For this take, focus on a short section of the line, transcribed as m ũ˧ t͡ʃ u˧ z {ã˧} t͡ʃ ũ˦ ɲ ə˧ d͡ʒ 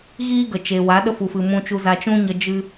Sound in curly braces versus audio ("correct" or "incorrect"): incorrect